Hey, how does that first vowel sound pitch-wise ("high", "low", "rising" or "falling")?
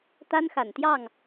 high